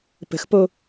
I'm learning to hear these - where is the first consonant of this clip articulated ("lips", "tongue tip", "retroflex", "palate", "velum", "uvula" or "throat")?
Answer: lips